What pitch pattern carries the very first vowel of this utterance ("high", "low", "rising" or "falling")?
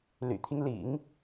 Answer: low